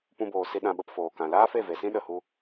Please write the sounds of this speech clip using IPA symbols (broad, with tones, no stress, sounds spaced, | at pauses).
p ũ˧ b oː˨ s i˧ ɗ ã˧ ɓ ə˧ p f oː˨ k ã˨ l aː˦ f e˦˨ v e˨ s ĩ˦ ɗ ə˨ h u˧